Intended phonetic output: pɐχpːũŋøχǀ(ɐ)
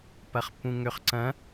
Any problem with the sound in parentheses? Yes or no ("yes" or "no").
yes